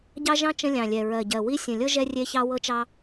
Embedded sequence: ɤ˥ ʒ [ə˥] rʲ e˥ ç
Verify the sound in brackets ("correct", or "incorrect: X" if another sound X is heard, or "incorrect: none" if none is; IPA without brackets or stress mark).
incorrect: ɛ˥